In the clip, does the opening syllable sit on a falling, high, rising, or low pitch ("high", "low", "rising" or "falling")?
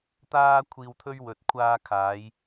high